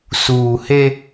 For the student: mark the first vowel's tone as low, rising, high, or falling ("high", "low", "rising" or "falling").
low